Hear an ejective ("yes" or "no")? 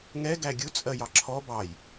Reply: yes